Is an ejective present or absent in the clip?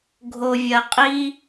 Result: present